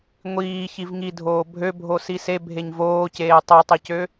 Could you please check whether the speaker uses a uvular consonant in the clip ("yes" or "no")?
no